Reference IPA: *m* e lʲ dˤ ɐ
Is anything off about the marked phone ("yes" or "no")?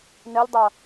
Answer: yes